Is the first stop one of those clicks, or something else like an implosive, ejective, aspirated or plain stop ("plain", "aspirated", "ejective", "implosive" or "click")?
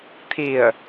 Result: aspirated